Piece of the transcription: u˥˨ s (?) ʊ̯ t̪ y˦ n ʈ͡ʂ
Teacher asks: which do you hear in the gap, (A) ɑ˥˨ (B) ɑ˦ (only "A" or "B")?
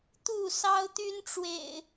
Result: B